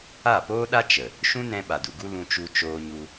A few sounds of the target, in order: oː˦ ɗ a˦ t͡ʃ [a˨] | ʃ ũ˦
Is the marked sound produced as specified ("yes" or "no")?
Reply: no